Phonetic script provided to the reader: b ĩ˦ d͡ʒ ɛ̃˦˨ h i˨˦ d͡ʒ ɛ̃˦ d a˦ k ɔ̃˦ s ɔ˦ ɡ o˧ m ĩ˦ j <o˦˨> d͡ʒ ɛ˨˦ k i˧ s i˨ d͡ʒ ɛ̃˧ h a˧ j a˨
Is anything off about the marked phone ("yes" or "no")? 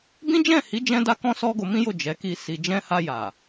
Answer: no